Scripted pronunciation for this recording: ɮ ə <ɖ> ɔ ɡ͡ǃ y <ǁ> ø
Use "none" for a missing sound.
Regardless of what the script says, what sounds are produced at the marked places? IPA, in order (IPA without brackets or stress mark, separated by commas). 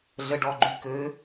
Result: ɖ, k